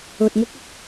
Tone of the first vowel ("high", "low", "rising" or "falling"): low